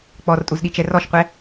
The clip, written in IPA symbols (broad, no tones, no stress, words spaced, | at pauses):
k͡pɔrtʼuzɗit͡ʃɛ rɔʃqʷɛ